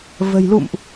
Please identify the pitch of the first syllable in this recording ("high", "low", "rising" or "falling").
low